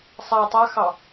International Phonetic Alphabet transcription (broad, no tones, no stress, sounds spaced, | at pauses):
sˤ a tˤ a x ɑ